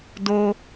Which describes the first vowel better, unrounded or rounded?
rounded